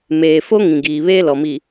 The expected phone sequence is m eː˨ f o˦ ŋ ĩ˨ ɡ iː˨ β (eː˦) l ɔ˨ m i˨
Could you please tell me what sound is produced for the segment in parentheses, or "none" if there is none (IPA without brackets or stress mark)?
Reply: eː˦